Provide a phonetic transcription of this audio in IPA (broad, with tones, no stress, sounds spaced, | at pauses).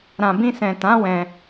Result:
ɾ ã˨ b ĩ˧ s ɛ̃˨ t ã˨˦ w ɛ̃˧